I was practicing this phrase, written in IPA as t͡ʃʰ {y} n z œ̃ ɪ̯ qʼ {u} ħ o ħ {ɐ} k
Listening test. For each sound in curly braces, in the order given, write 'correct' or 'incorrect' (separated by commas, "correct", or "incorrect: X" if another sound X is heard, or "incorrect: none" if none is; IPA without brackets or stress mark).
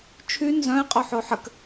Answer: correct, incorrect: o, incorrect: ə